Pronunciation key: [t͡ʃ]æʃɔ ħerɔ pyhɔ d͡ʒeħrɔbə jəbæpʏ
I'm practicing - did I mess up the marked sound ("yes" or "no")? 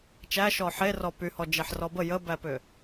no